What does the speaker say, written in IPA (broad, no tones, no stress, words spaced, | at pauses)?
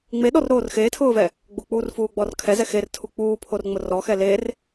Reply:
ŋ͡meɗɔrɾoːr xeːtʰʊːvɛ | ɡ͡bʊk͡puːrfuːɡ͡bɔr kʰɛzɛ xertʰu k͡puːpʰorŋ͡mʊ rɔxɛ ler